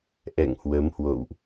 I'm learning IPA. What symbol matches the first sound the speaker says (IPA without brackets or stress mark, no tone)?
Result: ʔ